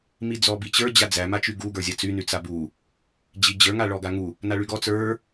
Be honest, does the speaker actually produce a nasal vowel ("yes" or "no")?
no